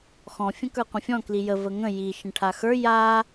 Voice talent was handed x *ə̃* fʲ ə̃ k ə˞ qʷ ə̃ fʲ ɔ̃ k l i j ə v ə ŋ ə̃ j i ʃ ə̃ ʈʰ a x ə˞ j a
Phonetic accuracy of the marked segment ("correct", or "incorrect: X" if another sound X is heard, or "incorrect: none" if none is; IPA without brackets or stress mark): incorrect: ɔ̃